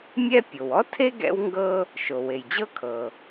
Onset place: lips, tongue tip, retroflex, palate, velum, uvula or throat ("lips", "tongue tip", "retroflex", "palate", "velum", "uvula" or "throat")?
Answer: lips